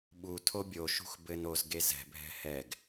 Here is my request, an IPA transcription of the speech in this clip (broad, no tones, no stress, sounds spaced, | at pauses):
ɓ u tʰ o bʲ o ʃ ṳ x b ɘ n o z ɡ e z ɛ̤ bʱ ɛ̤ h ɛ ɡ